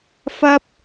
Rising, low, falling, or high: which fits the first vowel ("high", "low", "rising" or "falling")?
high